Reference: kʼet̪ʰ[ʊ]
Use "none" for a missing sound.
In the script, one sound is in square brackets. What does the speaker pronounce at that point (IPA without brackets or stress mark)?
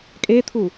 u